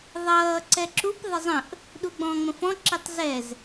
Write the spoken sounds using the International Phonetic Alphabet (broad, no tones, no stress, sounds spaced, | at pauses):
ðˤ ʌː ǀ ɛ ǁ u p ðˤ ɪ zˤ ə̃ ʔ | ɗ u ɡ͡b ɔ̃ː ŋ͡m ə̃ f ɔ̃ ǁ i tˤ z ɛ z